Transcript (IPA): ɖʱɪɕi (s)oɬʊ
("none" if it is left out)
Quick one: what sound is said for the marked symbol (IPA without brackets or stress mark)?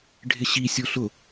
sʲ